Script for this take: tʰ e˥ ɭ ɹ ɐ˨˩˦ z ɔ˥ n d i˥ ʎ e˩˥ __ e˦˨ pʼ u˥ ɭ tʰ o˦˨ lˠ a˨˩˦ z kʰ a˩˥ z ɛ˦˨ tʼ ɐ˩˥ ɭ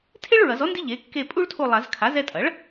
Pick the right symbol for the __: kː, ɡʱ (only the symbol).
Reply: kː